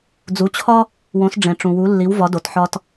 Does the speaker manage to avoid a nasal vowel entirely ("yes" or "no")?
no